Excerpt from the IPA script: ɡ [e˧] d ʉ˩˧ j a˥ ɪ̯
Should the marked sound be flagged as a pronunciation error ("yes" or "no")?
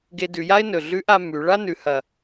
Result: no